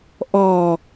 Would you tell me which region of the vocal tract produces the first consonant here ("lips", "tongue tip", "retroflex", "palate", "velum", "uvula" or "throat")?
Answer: throat